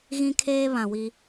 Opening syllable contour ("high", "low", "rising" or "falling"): high